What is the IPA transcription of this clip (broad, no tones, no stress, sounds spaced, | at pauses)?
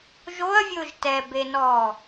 ʒ o ɐ̯ vʲ ʊː ʒ t ɛ b e n ɔː